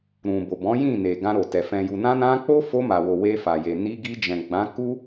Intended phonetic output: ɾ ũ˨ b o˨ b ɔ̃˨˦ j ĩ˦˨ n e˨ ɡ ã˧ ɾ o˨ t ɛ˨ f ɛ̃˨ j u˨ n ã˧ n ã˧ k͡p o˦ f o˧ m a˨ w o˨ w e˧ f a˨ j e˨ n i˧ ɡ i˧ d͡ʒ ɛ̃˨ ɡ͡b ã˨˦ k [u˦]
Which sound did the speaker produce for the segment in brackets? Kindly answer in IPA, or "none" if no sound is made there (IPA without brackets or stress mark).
u˦